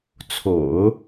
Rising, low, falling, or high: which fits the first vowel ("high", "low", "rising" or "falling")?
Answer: low